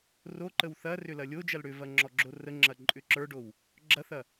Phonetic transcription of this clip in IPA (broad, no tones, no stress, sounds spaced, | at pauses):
r o ǃ ə w θ ɐ r ʏ l ɐ lʲ o d͡ʒ ɐ l ɽ ʏ v ɐ ŋ͡ǁ ɔ ɡ͡ǁ o r ə ŋ͡ǁ ɐ ǃʼ ʏ ǁ ə˞ ɖ o w | ɡ͡ǁ ɐ θ ɐ